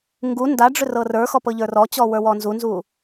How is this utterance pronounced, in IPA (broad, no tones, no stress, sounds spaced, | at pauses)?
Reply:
ŋ ɡ u n d a ɖ͡ʐ ʏ r ɤ r ə˞ x ɔ p ɤ ʎ ə˞ r ɔ t͡ɕ ɔ w ə˞ w ɔ n z u n z u